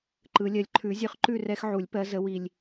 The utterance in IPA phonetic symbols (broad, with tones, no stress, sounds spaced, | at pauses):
ǃ ɯ˨˩˦ lʲ ɜ˨˦ lʲ ǃʰ ʉ˨˩˦ zʲ ʉ˨˦ χ ǃ ʉ˥˨ r ɛ˦ x ʕ u˨˩˦ lʲ p ɜ˨˦ z ə˨˦ w i˨ lʲ